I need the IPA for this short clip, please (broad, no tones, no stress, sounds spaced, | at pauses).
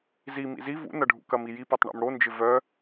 z i m ḭ z i v ṵ n ɐ ɖʱ ṵ k ɐ m i j i p œ tˤ ɳ ɛ̰ m ɽ o n d͡ʒ ɪ v œ